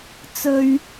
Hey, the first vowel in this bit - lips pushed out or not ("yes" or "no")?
yes